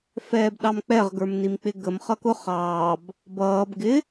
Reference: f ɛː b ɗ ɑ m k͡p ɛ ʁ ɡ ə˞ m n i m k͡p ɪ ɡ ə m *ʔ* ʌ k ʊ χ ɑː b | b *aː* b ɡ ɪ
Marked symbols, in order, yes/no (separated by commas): no, no